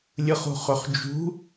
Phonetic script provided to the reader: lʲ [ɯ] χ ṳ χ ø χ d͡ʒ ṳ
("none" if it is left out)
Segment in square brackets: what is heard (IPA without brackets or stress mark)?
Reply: ɯ